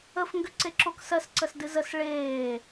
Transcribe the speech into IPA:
əf ŋɡʏǀeǁoksɜs ǀəsdɨzəs ɭeː

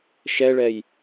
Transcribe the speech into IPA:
ʃɛɭɛj

